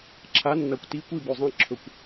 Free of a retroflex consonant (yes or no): yes